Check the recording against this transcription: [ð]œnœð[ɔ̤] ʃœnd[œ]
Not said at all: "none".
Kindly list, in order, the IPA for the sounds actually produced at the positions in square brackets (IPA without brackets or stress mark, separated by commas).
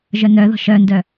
ʒ, ɔ̤, œ